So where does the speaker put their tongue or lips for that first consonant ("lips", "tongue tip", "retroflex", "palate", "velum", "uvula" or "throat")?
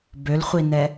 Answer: lips